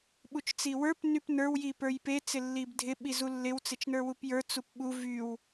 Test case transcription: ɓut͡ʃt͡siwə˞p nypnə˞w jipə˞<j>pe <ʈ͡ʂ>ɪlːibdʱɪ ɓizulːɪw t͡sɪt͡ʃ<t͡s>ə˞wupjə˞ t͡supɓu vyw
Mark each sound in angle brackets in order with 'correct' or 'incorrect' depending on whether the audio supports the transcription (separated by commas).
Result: correct, incorrect, incorrect